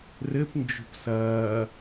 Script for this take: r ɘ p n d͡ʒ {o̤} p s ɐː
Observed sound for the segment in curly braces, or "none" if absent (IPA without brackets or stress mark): o̤